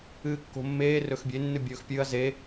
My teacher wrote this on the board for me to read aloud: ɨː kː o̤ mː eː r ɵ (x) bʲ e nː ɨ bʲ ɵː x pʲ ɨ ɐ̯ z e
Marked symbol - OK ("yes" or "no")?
yes